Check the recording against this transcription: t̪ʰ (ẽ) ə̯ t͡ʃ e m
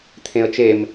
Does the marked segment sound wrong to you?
no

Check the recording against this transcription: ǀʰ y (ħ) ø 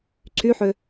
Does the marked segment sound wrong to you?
no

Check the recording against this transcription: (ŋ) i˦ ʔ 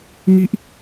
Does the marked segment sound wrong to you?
no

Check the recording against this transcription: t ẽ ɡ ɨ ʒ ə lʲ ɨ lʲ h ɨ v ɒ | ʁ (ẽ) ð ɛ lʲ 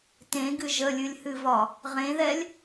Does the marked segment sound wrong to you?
no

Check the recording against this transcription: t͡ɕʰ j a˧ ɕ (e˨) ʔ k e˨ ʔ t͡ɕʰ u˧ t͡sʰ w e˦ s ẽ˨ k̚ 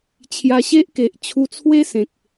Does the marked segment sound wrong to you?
yes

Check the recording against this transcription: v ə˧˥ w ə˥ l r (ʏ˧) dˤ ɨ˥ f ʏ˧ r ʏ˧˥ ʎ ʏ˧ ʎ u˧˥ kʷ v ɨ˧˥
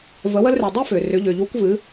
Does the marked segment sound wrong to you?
no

